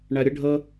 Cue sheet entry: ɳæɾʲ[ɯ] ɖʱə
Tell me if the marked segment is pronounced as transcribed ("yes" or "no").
no